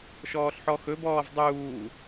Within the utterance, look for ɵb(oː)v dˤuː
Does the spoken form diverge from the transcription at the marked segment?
yes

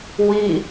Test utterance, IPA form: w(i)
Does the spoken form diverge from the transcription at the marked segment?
no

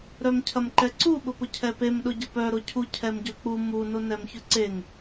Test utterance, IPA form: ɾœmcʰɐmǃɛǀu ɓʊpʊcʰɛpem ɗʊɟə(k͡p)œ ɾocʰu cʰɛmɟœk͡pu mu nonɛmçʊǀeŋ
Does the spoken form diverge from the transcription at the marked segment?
yes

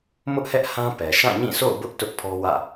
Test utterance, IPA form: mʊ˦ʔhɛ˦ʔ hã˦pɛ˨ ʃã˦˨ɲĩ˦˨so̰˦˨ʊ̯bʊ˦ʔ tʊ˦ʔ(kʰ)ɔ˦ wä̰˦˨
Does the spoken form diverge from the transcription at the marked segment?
yes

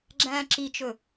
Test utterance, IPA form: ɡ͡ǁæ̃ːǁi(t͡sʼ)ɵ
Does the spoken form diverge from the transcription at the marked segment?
yes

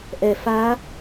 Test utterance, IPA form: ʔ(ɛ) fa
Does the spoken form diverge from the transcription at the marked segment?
no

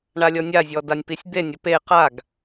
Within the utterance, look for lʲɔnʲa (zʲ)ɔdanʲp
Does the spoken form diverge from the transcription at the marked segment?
no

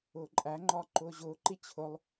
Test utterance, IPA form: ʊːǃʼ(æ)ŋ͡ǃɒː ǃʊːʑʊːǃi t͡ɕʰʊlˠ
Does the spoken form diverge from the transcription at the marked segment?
no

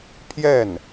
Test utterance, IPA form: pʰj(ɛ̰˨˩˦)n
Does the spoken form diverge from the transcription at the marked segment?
yes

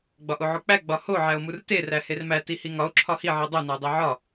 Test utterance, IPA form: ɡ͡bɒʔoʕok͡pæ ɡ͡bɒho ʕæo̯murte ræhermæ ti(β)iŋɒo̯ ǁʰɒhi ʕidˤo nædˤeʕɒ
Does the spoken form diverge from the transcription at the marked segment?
yes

